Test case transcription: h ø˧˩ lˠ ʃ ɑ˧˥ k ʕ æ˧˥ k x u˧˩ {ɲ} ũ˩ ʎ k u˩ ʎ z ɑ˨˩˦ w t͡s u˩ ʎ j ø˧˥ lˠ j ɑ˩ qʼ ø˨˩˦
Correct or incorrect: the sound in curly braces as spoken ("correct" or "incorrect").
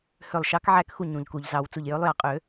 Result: correct